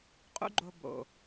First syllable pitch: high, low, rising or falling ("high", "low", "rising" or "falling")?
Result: high